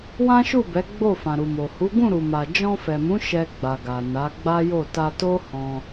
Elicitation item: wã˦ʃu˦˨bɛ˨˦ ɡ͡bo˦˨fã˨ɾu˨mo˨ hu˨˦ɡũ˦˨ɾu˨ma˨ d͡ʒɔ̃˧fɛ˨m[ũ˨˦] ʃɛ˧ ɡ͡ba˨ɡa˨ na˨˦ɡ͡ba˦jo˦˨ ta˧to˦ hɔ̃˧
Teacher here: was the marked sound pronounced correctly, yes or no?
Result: yes